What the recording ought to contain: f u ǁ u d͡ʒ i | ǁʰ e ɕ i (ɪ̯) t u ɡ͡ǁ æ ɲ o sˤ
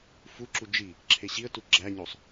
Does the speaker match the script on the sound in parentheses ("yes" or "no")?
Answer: no